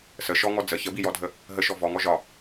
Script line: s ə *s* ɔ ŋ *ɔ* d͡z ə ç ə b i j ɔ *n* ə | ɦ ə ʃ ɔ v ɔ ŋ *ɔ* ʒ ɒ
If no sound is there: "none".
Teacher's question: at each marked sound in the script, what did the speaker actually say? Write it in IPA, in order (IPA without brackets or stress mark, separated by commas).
ʃ, ɔ, dʱ, ɔ